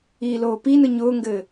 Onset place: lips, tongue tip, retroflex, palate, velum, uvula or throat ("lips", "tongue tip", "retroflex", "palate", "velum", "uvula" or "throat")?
tongue tip